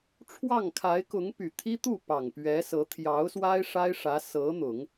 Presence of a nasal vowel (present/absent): absent